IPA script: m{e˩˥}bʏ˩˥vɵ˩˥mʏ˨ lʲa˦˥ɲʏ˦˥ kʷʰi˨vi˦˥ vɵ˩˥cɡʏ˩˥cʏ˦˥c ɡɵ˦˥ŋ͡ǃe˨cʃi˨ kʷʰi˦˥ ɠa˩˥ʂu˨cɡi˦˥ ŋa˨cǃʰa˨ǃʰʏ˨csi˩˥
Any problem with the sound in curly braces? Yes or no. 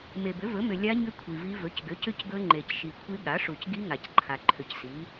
yes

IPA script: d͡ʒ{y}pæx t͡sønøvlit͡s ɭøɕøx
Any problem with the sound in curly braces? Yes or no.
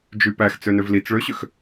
no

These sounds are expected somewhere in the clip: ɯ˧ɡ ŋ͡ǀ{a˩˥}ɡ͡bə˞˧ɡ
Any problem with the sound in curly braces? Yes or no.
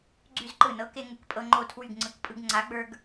no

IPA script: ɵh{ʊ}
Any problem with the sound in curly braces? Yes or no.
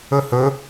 yes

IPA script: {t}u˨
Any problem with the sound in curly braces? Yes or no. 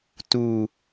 no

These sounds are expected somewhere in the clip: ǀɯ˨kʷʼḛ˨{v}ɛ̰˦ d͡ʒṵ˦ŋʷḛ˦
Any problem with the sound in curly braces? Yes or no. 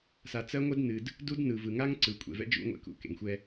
no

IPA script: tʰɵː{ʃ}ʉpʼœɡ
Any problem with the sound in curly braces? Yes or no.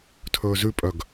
yes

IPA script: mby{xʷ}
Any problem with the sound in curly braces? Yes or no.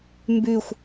no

